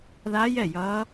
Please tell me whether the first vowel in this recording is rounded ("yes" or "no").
no